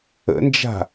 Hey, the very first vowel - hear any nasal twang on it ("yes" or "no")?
no